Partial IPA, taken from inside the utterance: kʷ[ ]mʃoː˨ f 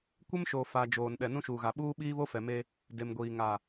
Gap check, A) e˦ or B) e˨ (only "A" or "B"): A